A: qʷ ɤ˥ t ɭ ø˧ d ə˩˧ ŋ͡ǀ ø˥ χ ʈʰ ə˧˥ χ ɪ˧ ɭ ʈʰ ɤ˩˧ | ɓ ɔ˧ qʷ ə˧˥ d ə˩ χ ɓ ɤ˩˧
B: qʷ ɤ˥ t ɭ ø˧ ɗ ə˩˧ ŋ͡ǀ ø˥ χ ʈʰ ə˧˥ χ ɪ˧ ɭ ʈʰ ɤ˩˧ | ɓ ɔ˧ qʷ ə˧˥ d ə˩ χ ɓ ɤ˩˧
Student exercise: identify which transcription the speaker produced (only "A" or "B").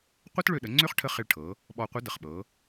B